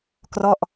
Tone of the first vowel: falling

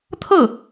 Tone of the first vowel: falling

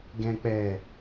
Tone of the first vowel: low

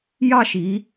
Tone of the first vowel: falling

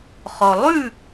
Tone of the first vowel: low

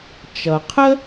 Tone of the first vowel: low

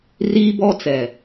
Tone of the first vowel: high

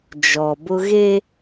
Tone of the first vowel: low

